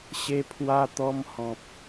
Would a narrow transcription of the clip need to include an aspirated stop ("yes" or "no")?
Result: yes